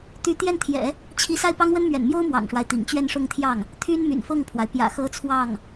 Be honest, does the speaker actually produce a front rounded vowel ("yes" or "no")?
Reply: yes